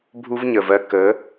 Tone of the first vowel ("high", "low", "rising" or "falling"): high